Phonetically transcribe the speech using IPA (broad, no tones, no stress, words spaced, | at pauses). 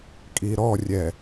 kʼiɾɔrʲɛ